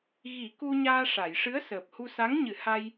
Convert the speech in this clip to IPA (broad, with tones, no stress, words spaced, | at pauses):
ɣi˨˩˦ ku˧ɲaː˧ʂa˨˩˨jʂɨ˧˥ə̯ səː˨˩p̚hu˧sa˧˥ŋɲɨ˨˩˦ ha˧j